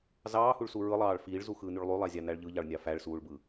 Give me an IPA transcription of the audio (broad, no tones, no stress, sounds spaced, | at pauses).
z ɑː h u ɭ s u ɹ ɯ lˠ ɑː ɭ f iː ɭ z u x ɯː n y ɭ lˠ y lˠ æ zʲ ɑ n æ ɭ ʎ ɯ ʎ ɑ ɭ nʲ ɑ f æ ɭ s uː ɭ b ɯ